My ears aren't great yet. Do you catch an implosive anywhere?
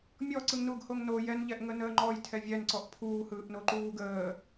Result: no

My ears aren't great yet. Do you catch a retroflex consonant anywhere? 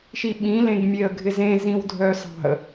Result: no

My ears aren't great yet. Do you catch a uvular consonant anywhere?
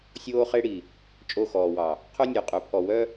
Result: yes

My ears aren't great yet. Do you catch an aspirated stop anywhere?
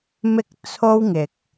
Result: yes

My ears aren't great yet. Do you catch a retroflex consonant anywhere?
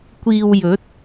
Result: no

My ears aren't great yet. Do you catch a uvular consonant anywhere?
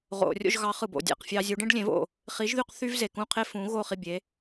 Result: yes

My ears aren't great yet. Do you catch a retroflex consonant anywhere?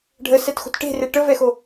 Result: yes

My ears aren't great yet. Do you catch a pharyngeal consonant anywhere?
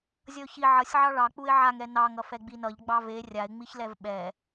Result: yes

